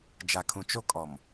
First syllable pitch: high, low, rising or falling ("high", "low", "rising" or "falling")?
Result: low